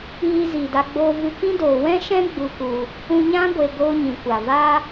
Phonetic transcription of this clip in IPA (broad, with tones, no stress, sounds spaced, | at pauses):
iː˧ z iː˨ d a˧ ɡ͡b oː˧ v ɨ˧ k ĩ˦ d oː˨ w ɛ̃˦ ʃ ɛ̃˦ ɡ͡b u˧ k u˧ | ũ˧ ɲ ã˦ ɡʷ e˨ ɡ oː˦ ɲ ĩ˨ kʷ a˨ v aː˦